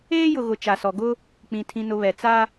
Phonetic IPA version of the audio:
eː˦jʊ˨ɣʊ˨ t͡ʃa˨sɔ˨ɡʊ˦ | k͡pĩ˨tʰĩ˨nʊ˨ βɛ˨t͡sa˦

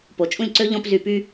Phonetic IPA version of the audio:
po˩˧t͡ʃʼũ˦˨lʲǀø˦ ʎɔ̃˦pzy˧˩˧py˦

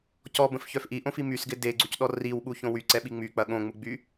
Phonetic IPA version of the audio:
cɔbə̃fçœf ʔiʔõfi mysɡɪ deɡ͡ǀucɗɔ riwɓuçõ wyǀɛɓi ŋ͡myk͡pɐ ɠõŋ͡muɡ͡by

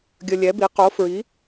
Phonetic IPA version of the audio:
ɡʲə˧ lʲɛ˧˥bi˧˥ qo˧˥fɹi˧˥

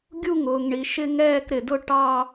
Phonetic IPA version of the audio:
ɡʲu˥˧ŋʊː˩ŋɳi˩ ʃɪ˥˧ŋɛː˥˧kɾɪ˩dʊ˥˧ ʈɑ˥˧

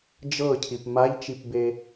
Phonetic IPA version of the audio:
d͡ʒɤcʰip maʎt͡ʃipbe

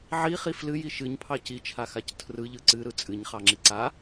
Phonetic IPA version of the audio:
ʕiχi flɨji ʃɨɲpʰɑ cit͡ʃʰaxac tʰrɯʎɯ ǀɨɾɯ t͡sʼɨɲχɑŋ͡ǁi ǀa

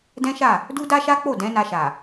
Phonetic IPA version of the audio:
dɛ̃˦ʃa˦˨ | du˦da˦ʃa˦k͡po˦˨ dɛ̃˨˦na˧ʃa˨

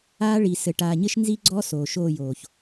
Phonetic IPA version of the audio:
aː˦ɭi˨ sɘ˨ʈaː˨ɲɘ˦ʃ nzi˦ɡ͡ǀɔ˦ soː˨ʃoː˦˨joː˨ç

